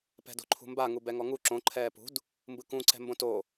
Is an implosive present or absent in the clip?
absent